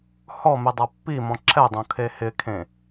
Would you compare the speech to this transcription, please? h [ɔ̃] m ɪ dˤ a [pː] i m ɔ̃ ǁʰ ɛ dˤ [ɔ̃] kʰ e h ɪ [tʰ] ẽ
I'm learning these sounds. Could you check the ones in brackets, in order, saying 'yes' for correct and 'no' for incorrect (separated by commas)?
no, yes, no, no